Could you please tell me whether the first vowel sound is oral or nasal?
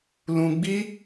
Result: nasal